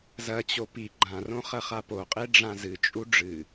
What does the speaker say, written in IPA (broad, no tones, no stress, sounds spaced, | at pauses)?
z ɐ t͡ɕ o p i ɡ͡ǃ ã r õ χ ɐ χ a p o qʼ e ɖ͡ʐ ã z ɨ t͡ʃʼ u ɖ͡ʐ ɨ